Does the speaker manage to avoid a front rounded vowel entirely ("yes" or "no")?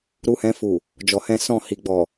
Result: yes